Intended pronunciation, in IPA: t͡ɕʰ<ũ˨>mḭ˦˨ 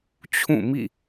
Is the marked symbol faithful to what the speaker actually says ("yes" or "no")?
no